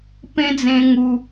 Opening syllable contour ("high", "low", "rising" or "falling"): high